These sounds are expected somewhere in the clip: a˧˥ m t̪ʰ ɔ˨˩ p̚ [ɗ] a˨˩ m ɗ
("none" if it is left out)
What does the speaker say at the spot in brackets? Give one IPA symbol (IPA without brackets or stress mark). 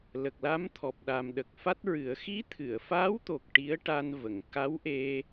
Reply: ɗ